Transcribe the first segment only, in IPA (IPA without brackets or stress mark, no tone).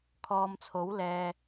kʰ